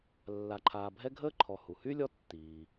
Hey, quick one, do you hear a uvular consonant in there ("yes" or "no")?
no